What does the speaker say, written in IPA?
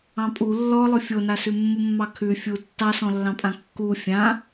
ɑ̃ pʼ u lː ɔ lˠ ʊ fʲ o n a s ʉ mː u mː ɑ kʰ ʉ fʲ u tː ɑ s ɔ̃ lː ɑ̃ pʼ ã kː u fʲ ã

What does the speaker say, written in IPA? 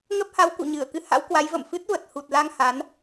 ŋ ə˦˥ p̚ h a˨˦ w k ṵ˧˨ ɲ ɨ˧˩ ə̯ k ɨ˧ h a̰˧˥ w k w a˨˦ j v ə̰˧˨ m f ɨ˦˥ t̚ v ə˨˩ t̚ h u˨˩ t̚ l a˧ ŋ h a˨˦ n

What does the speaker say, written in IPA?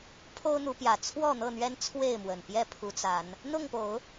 pʰ o˦ ʊ̯ n̪ u˨˦ p j ä˨˩ t͡sʰ w ɔ˥˨ n̪ ɤ˥˨ n̪ ɥ ɛ˦ n t͡sʰ w e˥˨ ɪ̯ m w ə˨˩ n p j ɛ˥˨ pʰ u˨˦ t͡s a˨˦ n | n̪ ʊ˥˨ ŋ p o˨˦ ʊ̯

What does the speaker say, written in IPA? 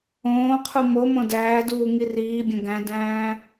õː qʰ u m o m õ d æː d uː ŋ i r iː bʲ õ ɡ æ̃ d æ̃ː

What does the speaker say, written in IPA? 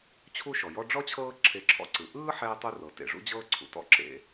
t͡ɕʰ u˦ ʃ ɔ˩ j ɔ˦ ɖ͡ʐ ɔ˥ t͡ɕʰ ɤː˦ ǁʰ e˨ ǁʰ ɔ̰˨ ǀ ɯ˩ ʔ ɯː˥ ħ ɛː˥ tˤ u˥ r ɤ˩ t ḛ˩ ʐ ṵ˥ d͡ʑ ɤː˥ ǀʰ ṵ˩ t ɔ̰˦ ǁ ḛ˨

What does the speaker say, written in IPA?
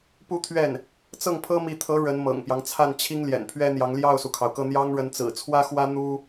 p u˥˧ t̪ʰ ɥ ɛ˥˩ n | t͡s ɤ˥˩ ŋ pʰ ɤ˥ m i˧˥ t̪ʰ ɤ˧˥ ɻ ə˧˥ n m ɤ̰˨˩ ŋ p j ɑ˦ ŋ t͡sʰ a˥˩ n t͡ɕʰ i˥ ŋ l j ɛ̰˨˩ n pʰ ɥ ɛ˥ n̪ j ɑ˧˥ ŋ l j ɑ˥˩ ʊ̯ s u˩ kʰ ɑ˩ ʊ̯ k ɤ˥˩ n̪ j ɑ˥ ŋ ɻ ə˧˥ n t͡s ɹ̩˨˩ t͡sʰ w ä˥ x w ä˥ n̪ u˥

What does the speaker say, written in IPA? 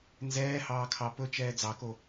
n z ɛː h ɑː kʰ ɑ p ɵ t͡ʃ ɛː d͡z ɑ k o

